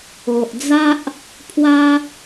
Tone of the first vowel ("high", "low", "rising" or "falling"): low